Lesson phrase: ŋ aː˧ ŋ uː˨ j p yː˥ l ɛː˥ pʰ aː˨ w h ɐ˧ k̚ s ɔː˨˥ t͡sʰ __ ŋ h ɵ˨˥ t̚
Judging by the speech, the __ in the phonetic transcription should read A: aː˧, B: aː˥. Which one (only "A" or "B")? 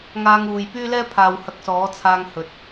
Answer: A